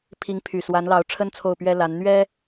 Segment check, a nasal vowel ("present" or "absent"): absent